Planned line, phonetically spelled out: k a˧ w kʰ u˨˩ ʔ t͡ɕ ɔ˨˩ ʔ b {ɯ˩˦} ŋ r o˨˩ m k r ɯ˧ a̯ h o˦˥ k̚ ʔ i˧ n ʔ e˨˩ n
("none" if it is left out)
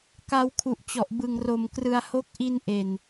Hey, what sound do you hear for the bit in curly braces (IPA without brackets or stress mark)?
ɯ˨˩